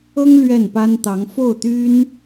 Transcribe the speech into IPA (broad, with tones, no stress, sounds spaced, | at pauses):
ɤ˥ ŋ l ɥ ɛ˥˩ n p a˥ n t̪ ɑ˧˥ ŋ f o˥˩ ʊ̯ t̪ y˥ n